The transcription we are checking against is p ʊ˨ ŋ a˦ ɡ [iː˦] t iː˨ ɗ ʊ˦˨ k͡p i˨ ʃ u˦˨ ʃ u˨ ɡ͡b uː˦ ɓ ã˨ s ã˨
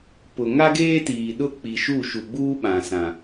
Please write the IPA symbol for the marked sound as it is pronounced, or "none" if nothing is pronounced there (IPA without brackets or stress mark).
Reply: eː˦